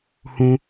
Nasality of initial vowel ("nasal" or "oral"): nasal